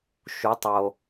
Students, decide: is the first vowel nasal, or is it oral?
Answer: oral